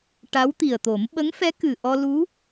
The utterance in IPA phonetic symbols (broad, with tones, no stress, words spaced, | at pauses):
ʈa˧˥w t̪i˨˩ə̯t̪o˨˩˦m ɓə˧˥ŋfɛ˧˥ kɨ˨˩ʔɔ˧ lu˧˥